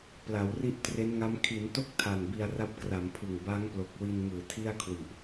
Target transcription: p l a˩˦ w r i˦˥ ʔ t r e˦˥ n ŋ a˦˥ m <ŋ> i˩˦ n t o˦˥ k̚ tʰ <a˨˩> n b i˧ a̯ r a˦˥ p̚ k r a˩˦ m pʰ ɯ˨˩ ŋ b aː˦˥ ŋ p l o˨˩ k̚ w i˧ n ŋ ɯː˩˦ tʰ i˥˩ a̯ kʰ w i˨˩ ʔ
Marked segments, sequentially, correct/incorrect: incorrect, correct

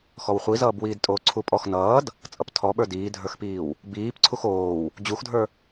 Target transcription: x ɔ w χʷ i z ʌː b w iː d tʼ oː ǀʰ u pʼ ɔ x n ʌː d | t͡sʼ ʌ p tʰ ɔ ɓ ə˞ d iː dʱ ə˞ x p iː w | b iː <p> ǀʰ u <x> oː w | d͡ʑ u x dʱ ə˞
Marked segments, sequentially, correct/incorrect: correct, correct

